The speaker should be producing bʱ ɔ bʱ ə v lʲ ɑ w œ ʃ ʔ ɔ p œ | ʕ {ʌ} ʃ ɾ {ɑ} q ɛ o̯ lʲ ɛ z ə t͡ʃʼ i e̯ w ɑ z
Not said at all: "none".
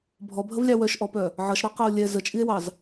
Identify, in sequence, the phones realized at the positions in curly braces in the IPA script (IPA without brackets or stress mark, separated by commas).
ʌ, ɑ